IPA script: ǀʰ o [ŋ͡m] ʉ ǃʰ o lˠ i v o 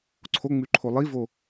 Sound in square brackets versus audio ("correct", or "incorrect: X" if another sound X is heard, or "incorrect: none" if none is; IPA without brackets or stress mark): correct